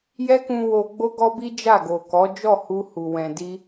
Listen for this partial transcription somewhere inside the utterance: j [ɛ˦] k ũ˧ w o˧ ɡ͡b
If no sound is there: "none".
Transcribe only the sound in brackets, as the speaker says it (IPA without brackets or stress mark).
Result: ɛ˦